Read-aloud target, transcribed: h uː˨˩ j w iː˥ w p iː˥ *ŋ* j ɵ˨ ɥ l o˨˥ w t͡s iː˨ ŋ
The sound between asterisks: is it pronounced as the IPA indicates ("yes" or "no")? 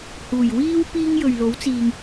yes